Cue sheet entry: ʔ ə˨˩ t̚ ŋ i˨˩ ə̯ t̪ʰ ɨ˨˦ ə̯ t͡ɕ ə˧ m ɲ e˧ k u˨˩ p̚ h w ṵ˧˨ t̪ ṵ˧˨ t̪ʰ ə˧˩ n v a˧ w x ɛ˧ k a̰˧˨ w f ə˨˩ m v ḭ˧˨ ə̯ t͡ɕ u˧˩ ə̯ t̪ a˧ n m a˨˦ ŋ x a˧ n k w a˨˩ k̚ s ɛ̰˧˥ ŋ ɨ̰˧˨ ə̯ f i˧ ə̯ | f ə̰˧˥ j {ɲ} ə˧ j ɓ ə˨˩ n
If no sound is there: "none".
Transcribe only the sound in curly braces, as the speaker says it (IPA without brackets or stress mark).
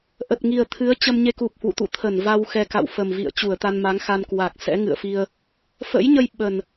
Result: ɲ